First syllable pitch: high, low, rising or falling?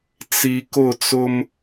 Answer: low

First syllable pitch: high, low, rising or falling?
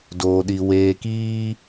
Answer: low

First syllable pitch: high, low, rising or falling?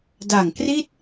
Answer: low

